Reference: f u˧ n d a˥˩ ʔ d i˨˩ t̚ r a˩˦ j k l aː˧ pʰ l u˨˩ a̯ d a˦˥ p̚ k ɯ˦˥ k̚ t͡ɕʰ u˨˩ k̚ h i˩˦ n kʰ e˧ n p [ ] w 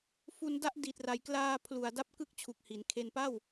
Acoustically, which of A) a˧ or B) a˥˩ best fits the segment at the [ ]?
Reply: B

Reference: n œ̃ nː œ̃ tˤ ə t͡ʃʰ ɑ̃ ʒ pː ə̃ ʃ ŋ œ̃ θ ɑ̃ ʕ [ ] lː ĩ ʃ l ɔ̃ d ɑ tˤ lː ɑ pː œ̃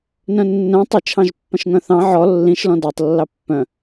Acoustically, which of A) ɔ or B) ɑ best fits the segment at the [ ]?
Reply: A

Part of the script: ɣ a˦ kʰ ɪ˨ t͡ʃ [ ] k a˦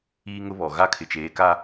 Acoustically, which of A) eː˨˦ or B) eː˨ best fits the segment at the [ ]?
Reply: A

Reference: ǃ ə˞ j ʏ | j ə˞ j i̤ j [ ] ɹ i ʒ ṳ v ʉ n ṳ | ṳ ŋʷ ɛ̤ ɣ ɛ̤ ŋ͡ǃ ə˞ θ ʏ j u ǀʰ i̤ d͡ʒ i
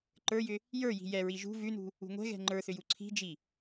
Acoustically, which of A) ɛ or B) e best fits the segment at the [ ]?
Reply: A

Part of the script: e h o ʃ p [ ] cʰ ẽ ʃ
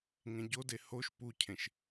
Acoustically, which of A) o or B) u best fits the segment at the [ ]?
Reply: B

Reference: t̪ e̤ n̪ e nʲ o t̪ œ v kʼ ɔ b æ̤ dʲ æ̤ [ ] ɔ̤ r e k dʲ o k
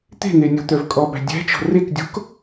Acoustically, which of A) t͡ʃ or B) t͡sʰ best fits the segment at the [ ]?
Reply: A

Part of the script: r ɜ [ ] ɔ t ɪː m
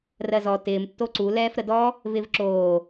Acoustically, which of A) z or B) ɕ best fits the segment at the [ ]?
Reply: A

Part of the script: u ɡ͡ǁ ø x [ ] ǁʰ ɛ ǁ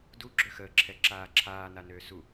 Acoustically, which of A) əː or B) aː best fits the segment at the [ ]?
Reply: A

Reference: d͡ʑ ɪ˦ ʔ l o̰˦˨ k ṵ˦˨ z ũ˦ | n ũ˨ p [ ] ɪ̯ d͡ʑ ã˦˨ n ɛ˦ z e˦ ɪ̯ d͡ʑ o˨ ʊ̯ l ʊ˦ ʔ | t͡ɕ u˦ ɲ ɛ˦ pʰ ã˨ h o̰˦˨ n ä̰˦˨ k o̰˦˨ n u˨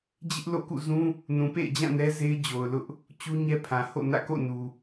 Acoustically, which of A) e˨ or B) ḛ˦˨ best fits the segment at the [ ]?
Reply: B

